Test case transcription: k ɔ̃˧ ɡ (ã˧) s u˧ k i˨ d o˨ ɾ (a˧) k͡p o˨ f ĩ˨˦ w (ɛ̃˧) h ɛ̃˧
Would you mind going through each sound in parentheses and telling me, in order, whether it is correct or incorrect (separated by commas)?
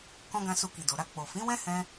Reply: correct, correct, incorrect